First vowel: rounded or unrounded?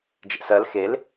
unrounded